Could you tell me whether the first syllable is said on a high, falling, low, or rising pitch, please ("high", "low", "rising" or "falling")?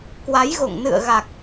rising